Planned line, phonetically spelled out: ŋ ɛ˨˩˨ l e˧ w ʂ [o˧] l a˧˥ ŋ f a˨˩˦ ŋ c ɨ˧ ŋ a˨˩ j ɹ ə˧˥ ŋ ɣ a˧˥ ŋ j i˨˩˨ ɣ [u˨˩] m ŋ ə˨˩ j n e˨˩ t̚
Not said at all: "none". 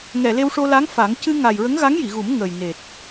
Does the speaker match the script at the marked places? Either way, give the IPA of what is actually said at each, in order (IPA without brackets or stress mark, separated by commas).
o˧, u˨˩˦